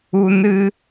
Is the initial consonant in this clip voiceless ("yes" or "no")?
no